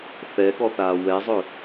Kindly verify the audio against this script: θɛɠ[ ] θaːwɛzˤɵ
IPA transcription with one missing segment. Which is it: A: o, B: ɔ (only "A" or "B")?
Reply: B